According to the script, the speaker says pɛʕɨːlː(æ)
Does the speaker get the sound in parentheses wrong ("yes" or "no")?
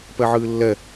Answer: yes